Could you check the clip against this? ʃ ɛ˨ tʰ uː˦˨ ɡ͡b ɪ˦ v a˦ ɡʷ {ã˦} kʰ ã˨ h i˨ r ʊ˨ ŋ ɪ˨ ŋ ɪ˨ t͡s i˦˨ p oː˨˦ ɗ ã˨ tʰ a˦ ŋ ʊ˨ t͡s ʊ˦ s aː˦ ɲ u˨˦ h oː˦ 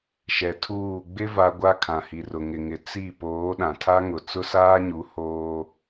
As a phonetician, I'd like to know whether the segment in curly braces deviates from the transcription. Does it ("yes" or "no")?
yes